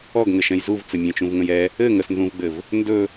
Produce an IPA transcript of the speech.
ɔɡŋɘʃɛ̃j zuvt͡sɘmʲɛ̃t͡ʃũv ŋə̃jɛ | ɘ ŋəsnzũvɡ͡bɘv | ndɵ

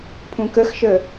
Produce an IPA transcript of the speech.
pʰũkəxʃə

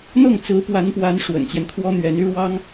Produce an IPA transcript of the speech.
n̪ɤ˥˩ŋt͡sɹ̩˧˥pwa˧˥npwa˧˥n ʂwə̰˨˩nt͡ɕjɛ˦nkʰwɔ˥ n̪ɥɛ˧˥ny˥ ɻwɑ˥ŋ

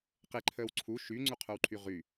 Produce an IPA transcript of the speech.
qeǃʰəːw ǀʰu ʃyŋ͡ǀuqʰœwǃʰy ʁy

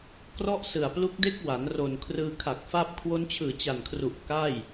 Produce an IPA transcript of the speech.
krɔ˥˩ʔsɯ˨˩a̯plu˦˥k̚ de˦˥k̚wa˩˦n ro˨˩n kʰrɯː˧ kʰa˨˩k̚fa˥˩p̚ kʰwo˦˥nt͡ɕʰɯː˨˩t͡ɕa˨˩nkʰru˨˩ʔ ka˥˩j

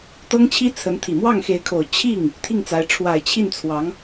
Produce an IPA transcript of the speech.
t̪ɤ˥ŋt͡ɕʰi˥t͡sʰə˧˥nt̪ʰi˨˩ mwɑ˥˩ŋxe˧˥ɪ̯kʰo˨˩ʊ̯ t͡ɕʰi˥˩ŋ | t̪ʰi˥˩ŋt͡sa˧˥ɪ̯ ʈ͡ʂʰwa˨˩ɪ̯t͡ɕʰi˥˩nt͡sʰwɑ˧˥ŋ

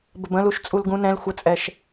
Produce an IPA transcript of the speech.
bəbə̃luʃ t͡sʼulɡũ nɛ̃l xʷət͡sʼɛʃ

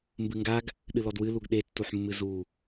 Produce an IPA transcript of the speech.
mbɨŋɡaɡ | ɗɨlɔdwɨ luɡɗetːuħmːɨ zu

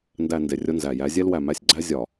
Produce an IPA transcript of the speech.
ndæ˨ nde˨rʲo˦nzæ˨ jæ˨˦zʲe˦lwæ˨mæ˦˨sʲ ɡ͡ǀæ˦zʲɒ˨

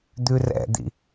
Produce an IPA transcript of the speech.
d̪ʉrɛ̰d̪ḭ

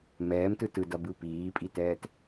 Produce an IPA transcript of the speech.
mɛːmtɯ tɯdʌbɯ piːpʼitɛːt

